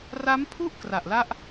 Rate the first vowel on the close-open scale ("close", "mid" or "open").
open